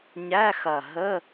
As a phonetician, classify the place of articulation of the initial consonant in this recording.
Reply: palatal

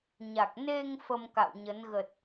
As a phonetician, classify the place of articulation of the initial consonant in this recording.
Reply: palatal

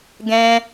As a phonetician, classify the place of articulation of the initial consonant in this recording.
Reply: velar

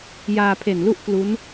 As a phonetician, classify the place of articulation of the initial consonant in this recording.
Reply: palatal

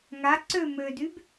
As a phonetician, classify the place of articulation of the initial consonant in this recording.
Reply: velar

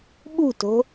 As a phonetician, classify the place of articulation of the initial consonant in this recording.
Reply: labial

